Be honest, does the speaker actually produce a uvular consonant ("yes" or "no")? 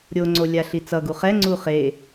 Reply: yes